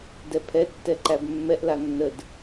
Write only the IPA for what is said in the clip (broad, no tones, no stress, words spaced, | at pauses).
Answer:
dɛpʰɛ tːɛǃæbmːɛʔ lanːəd